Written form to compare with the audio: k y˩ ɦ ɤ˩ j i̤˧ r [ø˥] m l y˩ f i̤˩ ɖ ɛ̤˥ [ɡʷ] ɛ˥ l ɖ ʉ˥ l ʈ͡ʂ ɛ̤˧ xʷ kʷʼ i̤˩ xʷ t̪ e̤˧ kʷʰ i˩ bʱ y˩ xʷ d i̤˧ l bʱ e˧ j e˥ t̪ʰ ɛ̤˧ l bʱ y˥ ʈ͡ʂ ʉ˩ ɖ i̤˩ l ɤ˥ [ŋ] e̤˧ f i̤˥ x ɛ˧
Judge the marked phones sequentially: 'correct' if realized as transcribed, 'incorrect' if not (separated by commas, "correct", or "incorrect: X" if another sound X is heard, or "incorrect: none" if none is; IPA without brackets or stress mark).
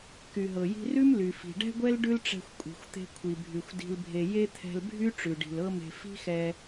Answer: incorrect: ʉ˥, correct, incorrect: m